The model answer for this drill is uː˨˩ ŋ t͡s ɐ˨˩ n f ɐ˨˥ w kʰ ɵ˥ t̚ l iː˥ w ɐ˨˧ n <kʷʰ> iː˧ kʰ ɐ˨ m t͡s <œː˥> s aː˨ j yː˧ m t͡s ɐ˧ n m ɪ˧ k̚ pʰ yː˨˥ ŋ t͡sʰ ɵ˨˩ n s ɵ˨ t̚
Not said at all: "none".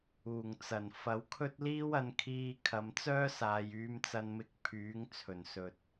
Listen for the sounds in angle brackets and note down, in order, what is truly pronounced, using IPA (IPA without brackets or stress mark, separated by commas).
kʰ, œː˥